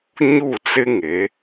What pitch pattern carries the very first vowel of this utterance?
falling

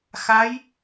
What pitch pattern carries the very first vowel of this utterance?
rising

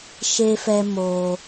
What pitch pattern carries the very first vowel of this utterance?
high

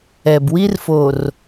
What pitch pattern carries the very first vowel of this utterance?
low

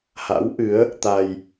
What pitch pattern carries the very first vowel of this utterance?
rising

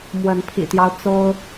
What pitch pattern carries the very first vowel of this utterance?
rising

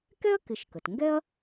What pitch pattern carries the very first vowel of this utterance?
high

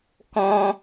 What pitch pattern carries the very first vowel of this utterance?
high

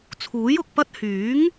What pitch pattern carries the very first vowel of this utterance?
rising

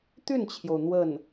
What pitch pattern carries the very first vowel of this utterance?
falling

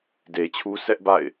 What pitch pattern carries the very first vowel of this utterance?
low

